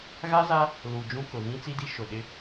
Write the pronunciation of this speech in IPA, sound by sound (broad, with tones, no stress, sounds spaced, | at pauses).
ɣ a˦ z a˦ | l u˨ d͡ʒ ũ˦ k ʊ˨ ɣ ĩ˦ t͡s i˦ d i˦ ʃ ʊ˨ ɗ ɪ˦